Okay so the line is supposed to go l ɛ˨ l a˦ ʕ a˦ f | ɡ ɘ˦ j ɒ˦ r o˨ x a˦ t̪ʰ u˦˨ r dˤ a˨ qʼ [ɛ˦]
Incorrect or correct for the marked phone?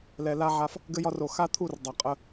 incorrect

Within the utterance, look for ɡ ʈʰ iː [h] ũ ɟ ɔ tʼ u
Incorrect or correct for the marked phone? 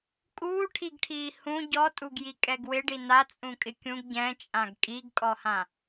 correct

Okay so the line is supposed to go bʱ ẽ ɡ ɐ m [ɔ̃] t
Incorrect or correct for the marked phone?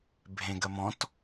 correct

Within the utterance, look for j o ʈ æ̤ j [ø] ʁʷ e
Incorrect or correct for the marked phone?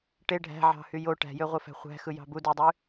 correct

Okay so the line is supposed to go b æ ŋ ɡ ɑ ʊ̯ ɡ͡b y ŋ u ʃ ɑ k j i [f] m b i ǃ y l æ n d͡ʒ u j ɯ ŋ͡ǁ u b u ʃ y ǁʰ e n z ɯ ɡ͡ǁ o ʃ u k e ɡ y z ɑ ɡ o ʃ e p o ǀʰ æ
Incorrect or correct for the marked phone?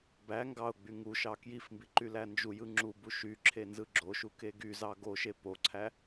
correct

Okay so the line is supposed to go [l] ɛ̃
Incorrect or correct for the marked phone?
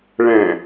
incorrect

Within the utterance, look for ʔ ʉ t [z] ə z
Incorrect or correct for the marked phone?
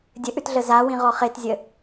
incorrect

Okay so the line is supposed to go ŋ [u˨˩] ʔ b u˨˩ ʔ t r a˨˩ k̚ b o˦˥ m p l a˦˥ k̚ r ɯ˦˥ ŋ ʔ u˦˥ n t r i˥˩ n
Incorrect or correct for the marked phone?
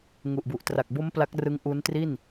correct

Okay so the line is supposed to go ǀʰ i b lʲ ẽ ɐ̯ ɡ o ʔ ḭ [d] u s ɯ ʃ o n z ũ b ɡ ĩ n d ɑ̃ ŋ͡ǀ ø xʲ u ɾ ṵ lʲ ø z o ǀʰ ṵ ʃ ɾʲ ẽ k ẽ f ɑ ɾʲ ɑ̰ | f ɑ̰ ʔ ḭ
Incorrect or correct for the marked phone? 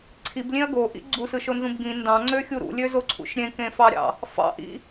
incorrect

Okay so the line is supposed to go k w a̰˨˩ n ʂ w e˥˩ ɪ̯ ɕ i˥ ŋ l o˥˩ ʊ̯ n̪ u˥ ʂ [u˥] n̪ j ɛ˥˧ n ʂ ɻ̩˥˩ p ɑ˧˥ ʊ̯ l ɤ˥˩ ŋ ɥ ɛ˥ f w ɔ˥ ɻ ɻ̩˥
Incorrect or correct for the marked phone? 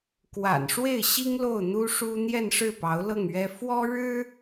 correct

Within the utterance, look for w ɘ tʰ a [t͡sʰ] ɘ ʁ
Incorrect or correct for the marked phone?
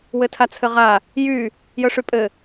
correct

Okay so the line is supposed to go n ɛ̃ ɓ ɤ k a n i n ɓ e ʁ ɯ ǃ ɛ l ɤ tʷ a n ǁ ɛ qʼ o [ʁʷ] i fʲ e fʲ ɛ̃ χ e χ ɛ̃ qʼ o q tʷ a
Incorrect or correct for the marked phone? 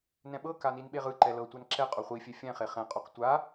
incorrect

